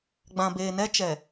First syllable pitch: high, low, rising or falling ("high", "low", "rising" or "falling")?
low